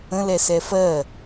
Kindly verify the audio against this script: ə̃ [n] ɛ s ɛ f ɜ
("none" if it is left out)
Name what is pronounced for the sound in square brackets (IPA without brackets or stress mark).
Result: l